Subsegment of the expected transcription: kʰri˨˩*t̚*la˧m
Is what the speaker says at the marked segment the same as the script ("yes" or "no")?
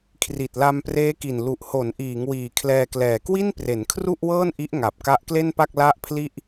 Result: yes